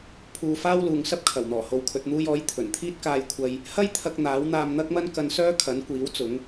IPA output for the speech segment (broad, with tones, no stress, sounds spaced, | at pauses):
pʰ uː˧ f aː˥ w l uː˨ ŋ s ɐ˥ p̚ kʰ ɐ˨˩ w n̪ ɔː˨˩ h o˨ w kʰ ɵ˨ t̚ n̪ uː˧ j ɔː˨˥ j t̪ʰ ɵ˨˩ n t̪ʰ iː˥ t̚ k aː˧ j kʷʰ ɐ˧ j | h ɐ˥ j t̪ʰ ɐ˧ k̚ n̪ aː˨˥ w n̪ aː˧ m n̪ ɐ˥ k̚ m ɐ˥ n k ɐ˧ n s œː˥ kʰ ɐ˨˥ n kʷ iː˨˥ w t͡s ʊ˨˥ ŋ